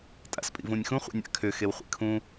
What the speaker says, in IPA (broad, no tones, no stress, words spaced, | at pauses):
tʼa̰spʼḭvũnʲxũ χʷḭnʲa̰kʰʏ xewχʷḭkʰũ